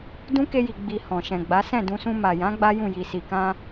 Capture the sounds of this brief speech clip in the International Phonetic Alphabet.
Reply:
d ũ˦ k e˧ j i˨ ɡ͡b i˨ h ɔ̃˨ ʃ ɛ̃˨ ɡ͡b a˨˦ s ɛ̃˦˨ d ũ˧ s ũ˧ m a˨ j ã˨˦ ɡ͡b a˦ j ũ˦˨ j i˨ s i˨ k ã˧

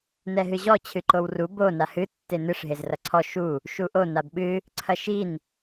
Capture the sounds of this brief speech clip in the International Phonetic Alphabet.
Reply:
n ɛ ɦ ɨ ʑ ɔ t͡ɕʰ ɨ ǃ o w r u b o n a h ɨ tː e n ɨ ʂ ɦ e z r ɐ ǀʰ ɔ ʃ u | ʃ u ʔ o n a b ɓ ɨ | ǀʰ ɐ ʃ i n

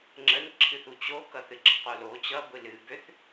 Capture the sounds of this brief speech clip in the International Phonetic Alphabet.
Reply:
ŋ͡ǁ ə n ǁʰ ɨ θ u t͡ɕ o k ʌ θ ɨ ɡ͡ǁ ʌ q o l o t͡ɕ ʌ ɡʷ ɨ l ɨ b ø θ

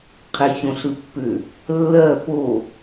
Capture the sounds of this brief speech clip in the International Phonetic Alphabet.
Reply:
qʰ e ç õ ɬ ɯ pː ʏ | lː ɜ p o

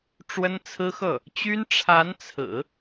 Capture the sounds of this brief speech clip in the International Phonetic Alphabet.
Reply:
ʈ͡ʂ w ə˥ n t͡sʰ ɹ̩˥ x ɤ˥˩ | t͡ɕ y˥ n ʈ͡ʂʰ a˧˥ n t͡sʰ ɹ̩˨˩˦

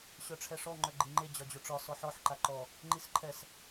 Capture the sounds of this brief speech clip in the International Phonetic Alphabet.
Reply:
ɕ œ ʈ͡ʂʰ ɛ ʂ ɔ ŋ͡ǃ œ ɡ͡ǃ i ŋ͡ǃ e d͡ʑ ɒ d͡ʑ o ʈ͡ʂ ɒ s ɔ ħ ɔ ħ ǃ a ǃ ɔ | ŋ͡ǃ i s ǃʰ ɛ s

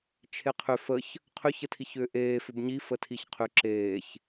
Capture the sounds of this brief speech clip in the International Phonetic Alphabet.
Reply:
t͡ʃʰ e qʰ ʏ f ə ç | qʰ ʏ ç ə tʰ i ç ʏː ʔ eː f ʏ b ɲ i f ə tʰ i ç qʰ ʏ ǁ eː ç

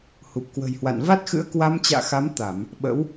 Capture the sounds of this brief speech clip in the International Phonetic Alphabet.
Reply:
h u˨˩ p̚ k w ə̤˨˩ j h w a̰˧˨ n v a˦˥ t̚ x ɨ̰˧˥ ə̯ k w a˧ m t͡ɕ a̰ː˧˨ x a˨˦ m t̪ a˧˩˨ m | ɓ ə̰˧˥ w

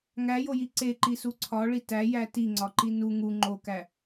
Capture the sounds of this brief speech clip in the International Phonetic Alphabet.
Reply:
ŋ æ j o j i ǀ e ǃ i s u ǀʰ ɒ ɭ i t æ j æ t i ŋ͡ǀ ɒ ǃ i n u ŋ u ŋ͡ǃ o k æ

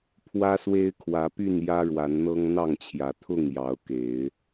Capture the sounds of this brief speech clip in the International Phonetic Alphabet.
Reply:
pʰ w ä˦ s w e˦ ɪ̯ kʰ w ä˨˦ p y˥˨ n j ä˦ ɻ w a˨˦ n n̪ ɤ˦ ŋ n̪ ɑ˥˨ ŋ t͡ɕʰ j ä˨˦ t̪ʰ ʊ˥˨ ŋ j ɑ˨˦ ʊ̯ k e˨˦ ɪ̯

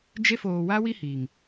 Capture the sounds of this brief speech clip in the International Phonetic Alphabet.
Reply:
d͡ʒ e˧ f oː˨ w a˧ w i˦ h iː˨ ŋ

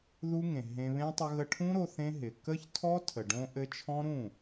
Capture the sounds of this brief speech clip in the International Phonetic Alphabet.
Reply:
ð u˦ ŋ ẽ˨ ɦ ẽ˧ β ẽ˦ tˤ ə˧ ɣ ə˧ ʈʰ ũ˦ ɾ o˧ θ ẽ˦ ɦ ɪ˨ k ə˦ ç tʰ ɔ˦ tʰ ə˨ ɖ õ˦ ʔ ɘ˦ t͡ʃʰ ɔ̃˦ ɾ ũ˦˨

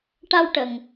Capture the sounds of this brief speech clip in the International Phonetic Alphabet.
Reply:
ʈ a˧ w ʈ ə˨˩ ŋ

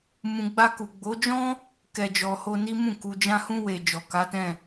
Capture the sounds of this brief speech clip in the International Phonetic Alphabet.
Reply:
m ũ˨ ɡ͡b a˧ k u˨ ɡ͡b o˨˦ d͡ʒ ɔ̃˦ | k ɛ˨ d͡ʒ ɔ˨ h o˧ n i˦ m ũ˦˨ k u˨ d͡ʒ ã˧ h ũ˧ w e˨ d͡ʒ ɔ˨ k a˨˦ t ɛ̃˦˨

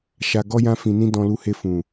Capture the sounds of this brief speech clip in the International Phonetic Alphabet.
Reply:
ʃ a˧ ɡ ɔ˦ j ã˦ f ĩ˧ n ĩ˦ d ɔ̃˧ l u˧ h e˧ f ũ˨

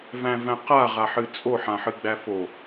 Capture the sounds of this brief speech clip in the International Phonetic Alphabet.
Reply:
v æ̃ v æ̃ q a ʁ a ħ ɨ t͡sʼ o ħ ã ħ ɨ ɡ͡b æ f o

